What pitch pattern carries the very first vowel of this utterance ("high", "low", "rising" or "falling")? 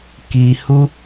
low